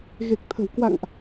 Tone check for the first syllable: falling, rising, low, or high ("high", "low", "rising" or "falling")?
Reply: low